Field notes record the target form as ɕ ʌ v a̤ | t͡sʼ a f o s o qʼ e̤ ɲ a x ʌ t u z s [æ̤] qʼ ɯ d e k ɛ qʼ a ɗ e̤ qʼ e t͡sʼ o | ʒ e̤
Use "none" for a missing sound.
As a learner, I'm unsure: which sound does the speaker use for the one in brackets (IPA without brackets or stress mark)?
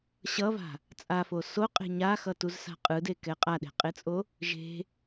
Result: a̤